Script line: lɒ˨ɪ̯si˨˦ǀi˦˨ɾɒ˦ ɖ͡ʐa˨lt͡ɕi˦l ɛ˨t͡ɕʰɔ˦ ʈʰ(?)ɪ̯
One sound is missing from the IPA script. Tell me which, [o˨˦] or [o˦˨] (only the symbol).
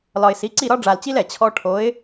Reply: o˨˦